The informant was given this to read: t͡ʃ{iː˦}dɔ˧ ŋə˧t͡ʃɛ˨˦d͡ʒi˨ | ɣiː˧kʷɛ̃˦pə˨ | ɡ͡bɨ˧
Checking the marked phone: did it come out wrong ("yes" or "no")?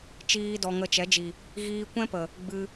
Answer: no